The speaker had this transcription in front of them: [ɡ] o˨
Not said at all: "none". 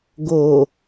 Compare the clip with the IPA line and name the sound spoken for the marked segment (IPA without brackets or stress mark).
ɡ